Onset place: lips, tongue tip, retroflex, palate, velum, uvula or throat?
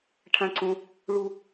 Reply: retroflex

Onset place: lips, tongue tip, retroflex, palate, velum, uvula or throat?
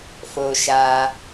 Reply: lips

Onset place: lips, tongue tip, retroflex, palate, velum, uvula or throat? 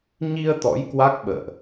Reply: palate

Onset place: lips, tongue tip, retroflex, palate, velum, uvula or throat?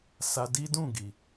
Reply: tongue tip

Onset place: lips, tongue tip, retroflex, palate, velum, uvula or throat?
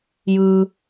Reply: palate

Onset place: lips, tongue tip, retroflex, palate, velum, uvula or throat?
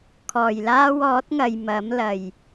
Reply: velum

